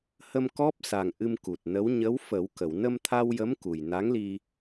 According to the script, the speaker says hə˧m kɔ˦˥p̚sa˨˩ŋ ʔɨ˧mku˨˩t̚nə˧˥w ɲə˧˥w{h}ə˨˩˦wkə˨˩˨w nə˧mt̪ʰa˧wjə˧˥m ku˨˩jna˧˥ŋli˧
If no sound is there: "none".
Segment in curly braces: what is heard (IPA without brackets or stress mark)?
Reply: f